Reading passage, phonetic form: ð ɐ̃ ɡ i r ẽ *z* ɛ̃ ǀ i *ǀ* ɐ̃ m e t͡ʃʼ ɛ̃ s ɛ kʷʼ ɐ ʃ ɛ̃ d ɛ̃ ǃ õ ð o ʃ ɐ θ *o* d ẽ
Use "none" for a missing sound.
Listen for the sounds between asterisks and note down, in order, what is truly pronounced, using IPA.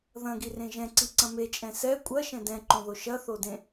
ʒ, ǀ, o

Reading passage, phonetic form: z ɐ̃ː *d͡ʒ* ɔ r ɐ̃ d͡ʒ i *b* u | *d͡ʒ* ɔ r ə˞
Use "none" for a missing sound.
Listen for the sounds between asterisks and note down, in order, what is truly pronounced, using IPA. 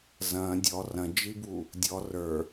dʲ, b, dʲ

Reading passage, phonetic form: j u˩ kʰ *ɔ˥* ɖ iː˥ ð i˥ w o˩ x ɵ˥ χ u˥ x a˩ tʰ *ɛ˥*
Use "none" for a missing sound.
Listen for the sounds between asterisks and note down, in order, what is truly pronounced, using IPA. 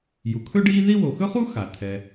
ɵ˥, ɛ˩

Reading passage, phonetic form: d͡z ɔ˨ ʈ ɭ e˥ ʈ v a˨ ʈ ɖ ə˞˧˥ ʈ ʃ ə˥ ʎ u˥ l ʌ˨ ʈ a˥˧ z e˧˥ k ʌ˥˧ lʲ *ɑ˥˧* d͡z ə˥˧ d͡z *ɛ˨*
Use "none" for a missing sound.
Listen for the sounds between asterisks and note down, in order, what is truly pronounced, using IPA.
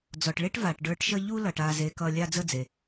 a˥˧, e˨

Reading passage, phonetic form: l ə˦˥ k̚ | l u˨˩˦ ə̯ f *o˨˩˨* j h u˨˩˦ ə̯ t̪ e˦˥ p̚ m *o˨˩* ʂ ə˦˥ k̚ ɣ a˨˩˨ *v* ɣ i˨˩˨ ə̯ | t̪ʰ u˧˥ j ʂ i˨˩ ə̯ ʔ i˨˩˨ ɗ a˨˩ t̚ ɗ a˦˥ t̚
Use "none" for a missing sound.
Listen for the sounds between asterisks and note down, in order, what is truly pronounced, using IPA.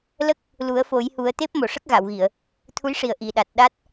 o˨˩˦, o˨˩, w

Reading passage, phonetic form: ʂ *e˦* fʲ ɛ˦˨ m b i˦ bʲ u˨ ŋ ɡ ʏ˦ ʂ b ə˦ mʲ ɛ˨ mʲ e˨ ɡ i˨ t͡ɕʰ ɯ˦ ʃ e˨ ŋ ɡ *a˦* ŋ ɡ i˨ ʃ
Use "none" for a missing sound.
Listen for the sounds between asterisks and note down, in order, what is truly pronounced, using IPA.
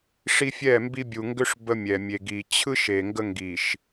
i˦, ə˦

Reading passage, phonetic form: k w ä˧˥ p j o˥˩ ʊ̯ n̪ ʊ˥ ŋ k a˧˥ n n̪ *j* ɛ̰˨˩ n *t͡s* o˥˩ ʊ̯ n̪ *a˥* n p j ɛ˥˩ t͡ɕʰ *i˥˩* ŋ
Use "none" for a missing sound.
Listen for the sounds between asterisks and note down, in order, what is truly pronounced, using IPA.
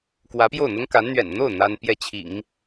ɥ, n̪, a˥, ḭ˨˩˦

